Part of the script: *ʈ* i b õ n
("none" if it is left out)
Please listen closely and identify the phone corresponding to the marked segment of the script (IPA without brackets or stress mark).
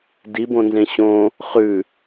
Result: d